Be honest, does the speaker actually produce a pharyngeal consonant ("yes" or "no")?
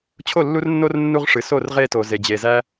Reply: no